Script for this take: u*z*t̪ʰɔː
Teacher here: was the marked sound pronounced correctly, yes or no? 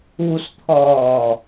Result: no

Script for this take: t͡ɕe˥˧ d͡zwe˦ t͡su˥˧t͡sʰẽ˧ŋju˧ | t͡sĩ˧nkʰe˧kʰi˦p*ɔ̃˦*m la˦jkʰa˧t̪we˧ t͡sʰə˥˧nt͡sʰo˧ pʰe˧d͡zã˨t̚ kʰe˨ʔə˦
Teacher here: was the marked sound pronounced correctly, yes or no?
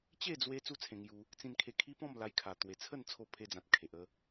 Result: no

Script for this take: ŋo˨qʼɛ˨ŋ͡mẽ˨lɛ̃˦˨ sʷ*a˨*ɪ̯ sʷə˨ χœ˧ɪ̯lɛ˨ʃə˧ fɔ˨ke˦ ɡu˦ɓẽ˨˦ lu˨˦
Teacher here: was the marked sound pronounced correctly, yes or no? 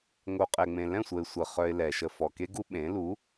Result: no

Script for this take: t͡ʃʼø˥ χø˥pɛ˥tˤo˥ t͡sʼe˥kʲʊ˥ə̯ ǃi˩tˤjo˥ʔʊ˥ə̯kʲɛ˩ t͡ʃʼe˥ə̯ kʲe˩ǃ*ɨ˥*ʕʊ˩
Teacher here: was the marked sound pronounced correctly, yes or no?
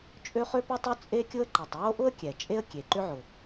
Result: no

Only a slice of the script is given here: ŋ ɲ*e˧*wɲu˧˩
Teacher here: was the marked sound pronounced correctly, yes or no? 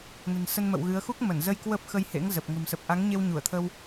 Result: yes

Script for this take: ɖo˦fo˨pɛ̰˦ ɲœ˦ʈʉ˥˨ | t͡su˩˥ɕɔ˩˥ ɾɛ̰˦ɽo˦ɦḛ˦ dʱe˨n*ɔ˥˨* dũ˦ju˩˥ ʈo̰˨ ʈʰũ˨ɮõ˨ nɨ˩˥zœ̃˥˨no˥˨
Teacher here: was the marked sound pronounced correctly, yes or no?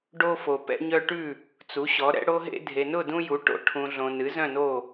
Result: no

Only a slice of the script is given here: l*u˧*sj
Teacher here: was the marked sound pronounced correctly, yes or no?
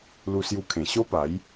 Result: yes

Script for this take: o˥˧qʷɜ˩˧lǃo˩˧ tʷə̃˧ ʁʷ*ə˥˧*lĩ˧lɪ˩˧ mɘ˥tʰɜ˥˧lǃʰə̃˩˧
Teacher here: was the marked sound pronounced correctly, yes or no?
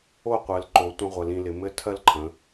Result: no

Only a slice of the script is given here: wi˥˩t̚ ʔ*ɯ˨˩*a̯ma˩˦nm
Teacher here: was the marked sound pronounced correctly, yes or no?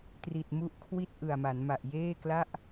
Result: yes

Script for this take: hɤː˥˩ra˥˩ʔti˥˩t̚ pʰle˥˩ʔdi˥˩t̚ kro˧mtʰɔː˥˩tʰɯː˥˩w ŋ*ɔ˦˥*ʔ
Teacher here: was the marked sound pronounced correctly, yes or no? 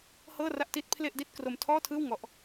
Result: yes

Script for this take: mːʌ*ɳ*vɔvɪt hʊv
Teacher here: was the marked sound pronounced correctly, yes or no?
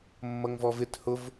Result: no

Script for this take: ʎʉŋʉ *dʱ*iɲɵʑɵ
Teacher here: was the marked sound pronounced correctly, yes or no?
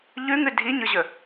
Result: yes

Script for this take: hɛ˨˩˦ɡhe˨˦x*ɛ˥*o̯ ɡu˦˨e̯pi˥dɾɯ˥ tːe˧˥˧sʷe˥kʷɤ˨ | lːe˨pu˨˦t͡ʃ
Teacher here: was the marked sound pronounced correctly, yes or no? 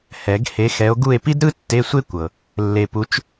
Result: no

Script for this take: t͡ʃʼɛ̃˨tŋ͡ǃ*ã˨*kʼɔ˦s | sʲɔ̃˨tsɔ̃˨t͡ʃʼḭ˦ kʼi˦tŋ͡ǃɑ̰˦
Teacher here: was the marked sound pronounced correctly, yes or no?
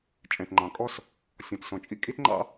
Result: no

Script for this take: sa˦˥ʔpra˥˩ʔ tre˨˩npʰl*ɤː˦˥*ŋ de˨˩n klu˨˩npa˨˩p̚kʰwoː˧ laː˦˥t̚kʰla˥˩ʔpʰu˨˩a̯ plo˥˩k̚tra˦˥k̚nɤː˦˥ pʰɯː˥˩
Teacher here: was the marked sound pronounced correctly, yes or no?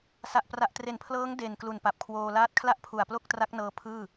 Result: yes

